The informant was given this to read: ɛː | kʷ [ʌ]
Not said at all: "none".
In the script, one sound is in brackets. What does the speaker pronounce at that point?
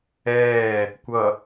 ʌ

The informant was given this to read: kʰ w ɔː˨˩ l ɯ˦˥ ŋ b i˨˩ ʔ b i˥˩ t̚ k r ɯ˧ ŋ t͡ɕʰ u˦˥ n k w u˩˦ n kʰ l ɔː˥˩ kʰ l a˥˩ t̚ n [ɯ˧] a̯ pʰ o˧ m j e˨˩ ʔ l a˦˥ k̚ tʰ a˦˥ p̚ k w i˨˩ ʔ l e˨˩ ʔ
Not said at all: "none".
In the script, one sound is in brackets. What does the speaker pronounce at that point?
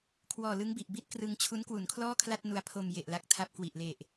u˧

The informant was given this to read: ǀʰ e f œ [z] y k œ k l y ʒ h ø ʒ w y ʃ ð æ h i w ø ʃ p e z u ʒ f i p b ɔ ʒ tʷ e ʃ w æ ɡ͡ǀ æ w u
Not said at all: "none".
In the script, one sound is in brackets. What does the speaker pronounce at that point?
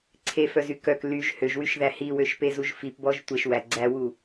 z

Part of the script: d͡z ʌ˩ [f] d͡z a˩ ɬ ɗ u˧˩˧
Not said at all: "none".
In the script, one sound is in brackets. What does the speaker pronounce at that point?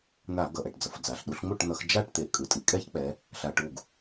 f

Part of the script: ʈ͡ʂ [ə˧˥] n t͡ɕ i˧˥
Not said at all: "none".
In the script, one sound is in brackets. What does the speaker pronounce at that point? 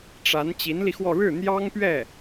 a˧˥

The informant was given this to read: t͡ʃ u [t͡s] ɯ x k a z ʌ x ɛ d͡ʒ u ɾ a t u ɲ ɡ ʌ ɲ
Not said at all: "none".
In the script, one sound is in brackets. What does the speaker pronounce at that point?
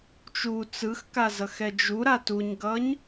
t͡s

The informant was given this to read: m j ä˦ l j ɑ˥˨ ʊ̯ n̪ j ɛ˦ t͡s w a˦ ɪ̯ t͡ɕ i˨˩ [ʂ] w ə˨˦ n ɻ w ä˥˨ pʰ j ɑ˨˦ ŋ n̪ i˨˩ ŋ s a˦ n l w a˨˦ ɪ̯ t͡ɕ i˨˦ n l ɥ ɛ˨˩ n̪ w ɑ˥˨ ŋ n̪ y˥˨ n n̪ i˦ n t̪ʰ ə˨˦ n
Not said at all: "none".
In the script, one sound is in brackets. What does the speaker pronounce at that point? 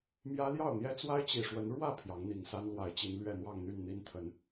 ʂ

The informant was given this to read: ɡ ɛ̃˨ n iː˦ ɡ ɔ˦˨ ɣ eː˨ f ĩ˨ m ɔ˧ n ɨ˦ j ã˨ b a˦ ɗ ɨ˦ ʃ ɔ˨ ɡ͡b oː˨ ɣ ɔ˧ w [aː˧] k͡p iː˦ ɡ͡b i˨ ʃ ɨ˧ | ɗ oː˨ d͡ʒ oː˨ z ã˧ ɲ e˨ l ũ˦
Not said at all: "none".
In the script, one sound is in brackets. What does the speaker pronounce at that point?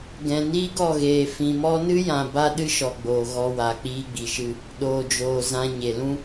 aː˨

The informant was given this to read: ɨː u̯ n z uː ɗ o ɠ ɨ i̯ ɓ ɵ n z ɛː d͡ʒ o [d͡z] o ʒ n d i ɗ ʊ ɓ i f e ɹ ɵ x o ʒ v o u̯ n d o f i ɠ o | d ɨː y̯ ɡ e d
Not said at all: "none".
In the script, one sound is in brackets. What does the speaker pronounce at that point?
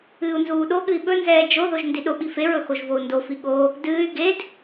ð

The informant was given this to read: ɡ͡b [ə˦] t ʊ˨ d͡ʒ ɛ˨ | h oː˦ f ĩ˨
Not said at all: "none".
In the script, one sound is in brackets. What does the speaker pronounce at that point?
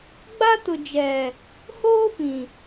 a˦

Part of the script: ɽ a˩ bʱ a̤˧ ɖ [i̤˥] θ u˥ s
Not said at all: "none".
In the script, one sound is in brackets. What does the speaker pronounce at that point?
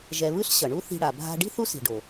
i̤˥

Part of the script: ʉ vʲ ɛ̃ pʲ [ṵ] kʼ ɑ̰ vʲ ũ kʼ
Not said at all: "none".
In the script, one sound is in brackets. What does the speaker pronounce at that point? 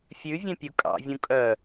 u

